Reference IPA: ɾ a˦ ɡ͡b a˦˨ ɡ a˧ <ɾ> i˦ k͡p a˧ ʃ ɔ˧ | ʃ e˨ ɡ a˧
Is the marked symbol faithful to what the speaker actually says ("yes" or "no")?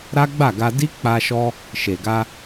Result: no